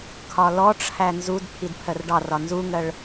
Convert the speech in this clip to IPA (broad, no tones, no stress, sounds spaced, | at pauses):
kʰ ɒ l ɔ ʈ͡ʂʰ æ n z u d pʰ i d pʰ ɜ r ɖ ɑ r ɒ n z u ŋ ɜ ɭ